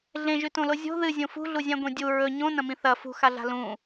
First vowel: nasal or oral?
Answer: nasal